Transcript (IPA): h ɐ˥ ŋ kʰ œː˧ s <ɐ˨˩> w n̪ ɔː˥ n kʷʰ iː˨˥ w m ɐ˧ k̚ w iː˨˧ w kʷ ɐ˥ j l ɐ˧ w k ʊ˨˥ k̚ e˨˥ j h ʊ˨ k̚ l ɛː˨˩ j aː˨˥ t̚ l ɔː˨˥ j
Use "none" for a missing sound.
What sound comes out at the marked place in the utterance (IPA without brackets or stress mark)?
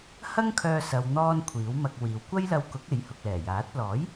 ɐ˨